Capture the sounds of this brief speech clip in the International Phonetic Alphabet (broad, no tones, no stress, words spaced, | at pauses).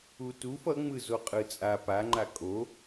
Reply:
utuf ʌŋ͡mɯ zoqʼɯt͡sʼa paŋ͡ǃa kʼo